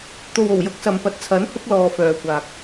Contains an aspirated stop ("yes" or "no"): yes